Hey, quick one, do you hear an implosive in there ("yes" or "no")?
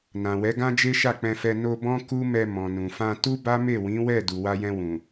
no